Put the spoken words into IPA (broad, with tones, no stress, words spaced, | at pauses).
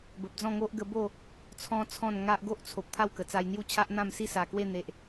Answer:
bə˨p̚d͡zɔ̃˥˧ŋo˦ʔ ɡə˧ bo˥˧ | t͡sʰɔ̃˦ t͡sʰɔ̃˥˧nŋa˦ʔ ɡo˦ʔt͡sʰo˨p̚ t̪ʰa˥˧wkə˨˩t͡sa˧jn̪ju˥˧ t͡ɕʰa˦ʔn̪ã˥˧msi˥˧ sa˨˩kwe˥˧ n̪e˨ʔ